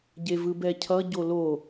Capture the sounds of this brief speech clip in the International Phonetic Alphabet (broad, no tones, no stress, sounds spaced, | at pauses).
ɟ e v ɯ b ɛ cʰ ʌ ɟ o l o